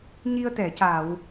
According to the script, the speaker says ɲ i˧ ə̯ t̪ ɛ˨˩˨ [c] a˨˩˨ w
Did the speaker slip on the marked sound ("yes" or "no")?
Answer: no